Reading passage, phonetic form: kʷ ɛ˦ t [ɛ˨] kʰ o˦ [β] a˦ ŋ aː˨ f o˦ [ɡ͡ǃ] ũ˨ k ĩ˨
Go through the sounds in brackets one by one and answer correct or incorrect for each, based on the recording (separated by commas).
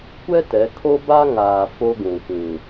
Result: incorrect, incorrect, incorrect